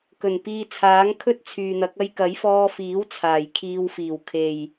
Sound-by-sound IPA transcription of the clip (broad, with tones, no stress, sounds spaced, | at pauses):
k ɵ˨˩ n p iː˧ t͡sʰ aː˨˥ ŋ kʰ ɵ˥ t̚ t͡sʰ yː˨ n̪ ɐ˨˥ k̚ ɐ˥ j k ɐ˨˥ j f ɔː˧ f iː˨˥ w t͡sʰ aː˨˩ j kʰ iː˧ w f iː˨˩ w kʰ e˨˩ j